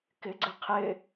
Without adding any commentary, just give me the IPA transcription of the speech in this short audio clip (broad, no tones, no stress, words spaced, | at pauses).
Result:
kɪɡ͡ǀɪ qʰɪ